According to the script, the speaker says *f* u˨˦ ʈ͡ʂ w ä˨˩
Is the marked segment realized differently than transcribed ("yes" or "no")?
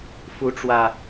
no